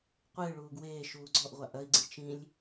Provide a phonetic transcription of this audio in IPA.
qʷ ɨː ɭ uː ɡ w eː ʃ uː ɡ͡ǀ ɔ ʔ ʁʷ a ʔ ɐ i̯ ɡ͡ǀ ɨ t͡ʃ ĩ lʲ

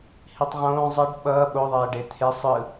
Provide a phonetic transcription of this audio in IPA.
h i tˤ ʁ õː zˤ ʌ ɖ ɓ ʌː ɓ o ðˤ ɛː ɖ e t̪ʰ e sˤ ɯ

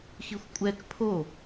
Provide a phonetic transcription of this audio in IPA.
x i xʷ kʷʼ ɛ k pʰ o

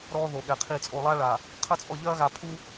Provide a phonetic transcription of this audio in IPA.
ɾ ɔː˦ ð o˨ ɠ ɛ˨ qʰ iː˨ t͡sʼ o˨ lˠ aː˦ ɭ a˨ | qʰ ɐ˦ t͡sʼ ɔ˦˨ ʎ ɐː˦ ɣ a˨ pʰ u˦

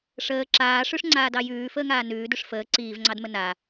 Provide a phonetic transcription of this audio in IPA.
ʂ əː ǁ aː ʂ ʉ ʂ ŋ͡ǀ aː d ɑ j ʉː f əː ŋ aː n ʉː d ʉ ʂ f əː ǀ iː v ŋ͡ǀ ɑ d m ə n a

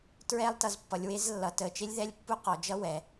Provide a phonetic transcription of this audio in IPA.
t ɹ ɛ˦˥ lˠ t ʌ˩˧ z pː ʌ˩˧ lʲ w e˦˥ z lː ʌ˩˧ t ə˩˧ t͡ʃ e˦˥ lʲ ð ɛ˦˥ lʲ pː u˦˥ q ɔ˩˧ d͡ʒ ʌ˦˥ w ɛ˩˧

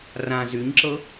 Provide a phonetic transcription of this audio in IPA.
r ã z y ɲ ǁ ɤ

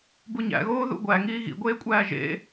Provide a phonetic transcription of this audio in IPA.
b u ɲ æ̰ ɣ oː ð ṵ ɡʷ æ ŋ iː ɣ ḭ ɡʷ eː kʷʼ æː ʒ ḛ

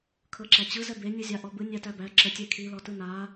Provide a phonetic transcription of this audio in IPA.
kʰ ɤ ǁ æ t͡ɕ ɯ z ɛ b e nʲ ɯ zʲ a ʔ ɔ b ɯ nʲ æ t æ b æ ǁ ə tʲ e kʰ i l ɔ t ɯ n a

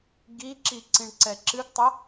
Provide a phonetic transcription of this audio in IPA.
ɡ i ǁ i ǀ ĩ ɳ ǀ ɛ ǁ ɨ ɡ tˤ ɐ

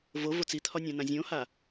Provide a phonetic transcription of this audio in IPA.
v o v o t͡s i t̪ʰ ɒ nʲ ã n ã zʲ õ h a

